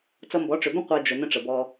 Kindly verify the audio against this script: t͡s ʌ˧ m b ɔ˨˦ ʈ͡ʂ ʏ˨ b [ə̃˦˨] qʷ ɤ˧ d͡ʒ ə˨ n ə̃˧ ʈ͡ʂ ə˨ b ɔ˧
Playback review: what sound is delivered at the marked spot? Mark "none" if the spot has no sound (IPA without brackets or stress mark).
ə̃˦